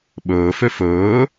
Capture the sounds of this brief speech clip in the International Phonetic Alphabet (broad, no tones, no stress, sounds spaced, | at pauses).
ɓ ɵː f ø f ɵː